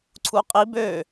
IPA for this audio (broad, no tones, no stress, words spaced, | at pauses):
ǀʰuqʼi bø